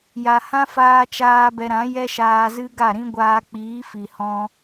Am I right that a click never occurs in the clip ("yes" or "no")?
yes